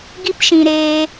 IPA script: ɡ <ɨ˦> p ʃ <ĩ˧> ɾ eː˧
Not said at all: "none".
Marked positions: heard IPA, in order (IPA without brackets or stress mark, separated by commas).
i˦, ĩ˧